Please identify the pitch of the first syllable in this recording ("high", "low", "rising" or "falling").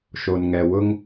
low